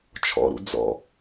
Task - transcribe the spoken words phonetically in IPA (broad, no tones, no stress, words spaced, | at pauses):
t͡ʃʰɔ̰ɾṵ d͡zɔ̰